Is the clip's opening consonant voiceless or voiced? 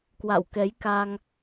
voiceless